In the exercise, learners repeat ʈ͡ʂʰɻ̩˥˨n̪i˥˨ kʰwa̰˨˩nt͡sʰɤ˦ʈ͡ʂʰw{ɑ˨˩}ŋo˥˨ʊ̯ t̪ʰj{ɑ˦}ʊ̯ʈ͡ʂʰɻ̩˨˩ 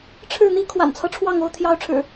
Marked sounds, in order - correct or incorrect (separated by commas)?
incorrect, correct